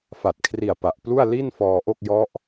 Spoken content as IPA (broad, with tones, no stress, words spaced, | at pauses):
fa˨˩t̚kʰri˨˩a̯ pa˨˩ʔplu˥˩a̯ li˥˩n fɔː˧ʔo˥˩k̚jɔ˦˥ʔ